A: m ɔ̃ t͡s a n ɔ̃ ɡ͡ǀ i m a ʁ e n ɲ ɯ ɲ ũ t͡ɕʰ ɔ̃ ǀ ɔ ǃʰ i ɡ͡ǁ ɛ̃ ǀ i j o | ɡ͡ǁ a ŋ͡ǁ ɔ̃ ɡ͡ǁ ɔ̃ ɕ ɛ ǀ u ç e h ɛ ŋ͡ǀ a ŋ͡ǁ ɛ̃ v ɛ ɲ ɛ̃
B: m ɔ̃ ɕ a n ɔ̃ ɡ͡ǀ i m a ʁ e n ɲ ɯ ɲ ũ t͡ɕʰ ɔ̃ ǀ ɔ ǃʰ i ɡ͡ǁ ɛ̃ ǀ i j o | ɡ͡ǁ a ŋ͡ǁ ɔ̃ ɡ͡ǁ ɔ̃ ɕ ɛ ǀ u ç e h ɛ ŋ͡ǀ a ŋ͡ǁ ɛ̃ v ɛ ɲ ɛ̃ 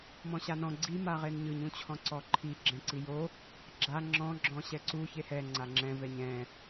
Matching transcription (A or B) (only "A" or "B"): B